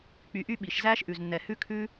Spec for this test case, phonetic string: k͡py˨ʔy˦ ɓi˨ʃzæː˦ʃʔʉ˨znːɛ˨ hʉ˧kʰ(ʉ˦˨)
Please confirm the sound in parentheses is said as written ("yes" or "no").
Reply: no